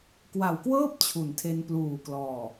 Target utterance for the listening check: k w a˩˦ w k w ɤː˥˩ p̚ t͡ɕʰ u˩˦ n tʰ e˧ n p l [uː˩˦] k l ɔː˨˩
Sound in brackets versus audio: incorrect: uː˨˩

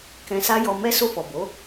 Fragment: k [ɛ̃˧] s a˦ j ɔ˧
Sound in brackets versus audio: correct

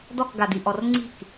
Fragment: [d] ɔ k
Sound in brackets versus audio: correct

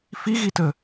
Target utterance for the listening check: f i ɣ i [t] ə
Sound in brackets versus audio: correct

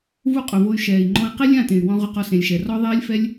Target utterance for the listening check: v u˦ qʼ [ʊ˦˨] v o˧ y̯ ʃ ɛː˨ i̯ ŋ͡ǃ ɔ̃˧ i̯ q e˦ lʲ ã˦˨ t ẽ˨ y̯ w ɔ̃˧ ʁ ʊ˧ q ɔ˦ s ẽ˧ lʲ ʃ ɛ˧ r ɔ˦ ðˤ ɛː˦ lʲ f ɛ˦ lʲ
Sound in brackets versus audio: incorrect: ʊ˨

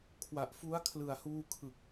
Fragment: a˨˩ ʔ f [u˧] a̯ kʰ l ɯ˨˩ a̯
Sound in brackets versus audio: incorrect: u˦˥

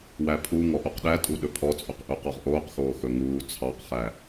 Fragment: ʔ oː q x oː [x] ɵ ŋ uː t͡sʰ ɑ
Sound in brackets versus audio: correct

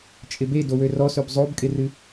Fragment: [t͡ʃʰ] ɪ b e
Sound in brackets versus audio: incorrect: t͡ʃʼ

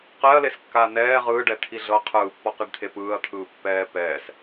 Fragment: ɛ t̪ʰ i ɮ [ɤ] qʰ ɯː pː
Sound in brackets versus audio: correct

